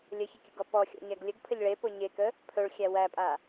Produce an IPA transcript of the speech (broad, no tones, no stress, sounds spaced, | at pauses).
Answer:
lʲ ə ç ə kʲ ə ɡ ɔ p ɔ xʲ ɔ̰ ɲ æ ɡ lʲ ə ɡ pʰ ə ʎ ɭ e p o ɲ e k ə | pʰ ɵ ɭ xʲ æ w æ pʼ a